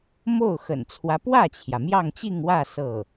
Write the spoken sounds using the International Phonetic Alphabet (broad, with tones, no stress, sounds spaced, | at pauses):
m o˥˩ ʊ̯ x ə̰˨˩ n t͡sʰ w ä˦ p w ä˥˩ t͡ɕʰ j ä˩ m j ɑ˥˧ ŋ t͡ɕ i˥˧ ŋ w ä˥˧ s ɤ˥˩